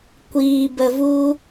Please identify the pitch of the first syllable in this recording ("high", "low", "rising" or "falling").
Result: low